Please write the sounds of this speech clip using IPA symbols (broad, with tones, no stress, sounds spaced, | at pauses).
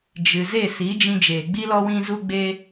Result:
d͡ʒ ɨ˨ z e˦˨ s i˨˦ d͡ʒ ĩ˧ d͡ʒ eː˨ ɡ͡b i˦ l ɔ˦ w ĩ˦ z u˦ ɡ͡b e˦